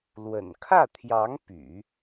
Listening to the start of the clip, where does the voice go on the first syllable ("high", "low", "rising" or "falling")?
low